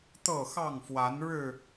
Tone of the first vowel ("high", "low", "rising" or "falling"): falling